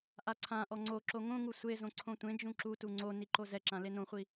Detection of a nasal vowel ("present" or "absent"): present